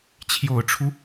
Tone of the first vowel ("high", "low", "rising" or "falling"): low